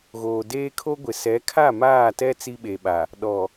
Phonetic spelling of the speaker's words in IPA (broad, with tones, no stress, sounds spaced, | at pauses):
ɣ oː˨ d eː˦ kʰ o˦ ɡʷ ɪ˨ s ɛ˨˦ kʰ a˦˨ m aː˦˨ t ɛ˦ t͡s i˦ ɓ e˨ ɓ a˨ | ɗ ɔ˨